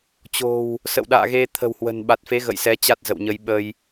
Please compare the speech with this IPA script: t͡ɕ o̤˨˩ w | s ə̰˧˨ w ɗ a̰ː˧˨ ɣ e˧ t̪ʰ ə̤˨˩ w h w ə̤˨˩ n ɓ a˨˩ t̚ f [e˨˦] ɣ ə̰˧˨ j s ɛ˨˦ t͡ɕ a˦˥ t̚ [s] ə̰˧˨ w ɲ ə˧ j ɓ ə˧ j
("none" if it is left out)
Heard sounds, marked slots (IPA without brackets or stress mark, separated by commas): e˨˦, z